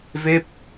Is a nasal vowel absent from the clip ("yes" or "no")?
yes